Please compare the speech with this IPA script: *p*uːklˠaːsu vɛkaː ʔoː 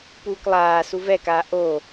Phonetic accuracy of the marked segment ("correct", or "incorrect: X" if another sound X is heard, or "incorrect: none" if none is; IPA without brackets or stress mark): correct